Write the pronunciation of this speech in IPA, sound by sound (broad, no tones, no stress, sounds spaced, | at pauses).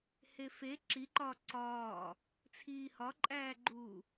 h e f e ǁ i ǃ ɒː ǀ ɒː | t͡sʰ iː h ɒ ǃʼ æː ɡ͡ǃ uː